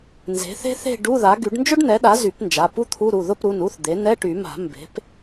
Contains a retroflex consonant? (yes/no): yes